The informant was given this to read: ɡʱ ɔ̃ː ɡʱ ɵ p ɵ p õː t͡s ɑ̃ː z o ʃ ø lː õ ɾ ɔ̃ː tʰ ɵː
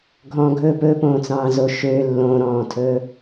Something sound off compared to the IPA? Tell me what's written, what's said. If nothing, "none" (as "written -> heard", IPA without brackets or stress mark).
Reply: none